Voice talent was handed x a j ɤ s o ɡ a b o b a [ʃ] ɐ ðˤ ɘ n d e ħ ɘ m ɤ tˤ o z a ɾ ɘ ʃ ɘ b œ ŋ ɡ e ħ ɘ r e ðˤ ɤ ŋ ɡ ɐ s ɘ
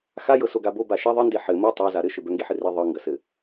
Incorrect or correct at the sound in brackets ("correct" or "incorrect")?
correct